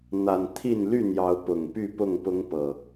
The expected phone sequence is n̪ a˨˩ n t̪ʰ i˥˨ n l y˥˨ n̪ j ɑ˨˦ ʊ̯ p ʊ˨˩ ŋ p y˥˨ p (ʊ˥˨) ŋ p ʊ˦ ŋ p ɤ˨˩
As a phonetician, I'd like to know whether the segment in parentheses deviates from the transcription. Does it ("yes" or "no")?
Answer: no